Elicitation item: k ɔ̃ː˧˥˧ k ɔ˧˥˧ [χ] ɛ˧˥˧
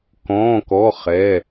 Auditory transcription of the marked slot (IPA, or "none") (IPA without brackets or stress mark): χ